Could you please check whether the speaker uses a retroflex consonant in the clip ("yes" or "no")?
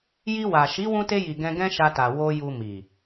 no